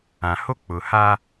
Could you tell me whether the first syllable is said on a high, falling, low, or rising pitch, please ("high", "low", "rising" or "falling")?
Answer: low